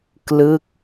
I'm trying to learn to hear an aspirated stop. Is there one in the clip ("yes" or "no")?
no